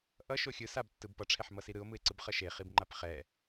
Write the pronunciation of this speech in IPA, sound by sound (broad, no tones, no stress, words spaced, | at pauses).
ʔʌʃo xʲɯ sabtːɯb pʌʈ͡ʂʰɛħmʌsi ɾɯo̯mɯe̯ ǀɯbχʌʃe χibŋ͡ǃapχɛ